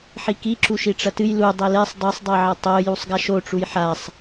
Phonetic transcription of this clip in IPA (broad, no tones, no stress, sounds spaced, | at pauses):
ħ i k i ǁ u ʃ i ʈ͡ʂ ɐ t ɨ j l u dˤ e l e sˤ dˤ i sˤ dˤ i ʕ ɐ tˤ o j u sˤ ɡ a ʃ o ʈ͡ʂ u j ħ a sˤ